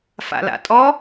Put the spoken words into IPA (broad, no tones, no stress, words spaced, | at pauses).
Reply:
fa̰la̰tʼɔ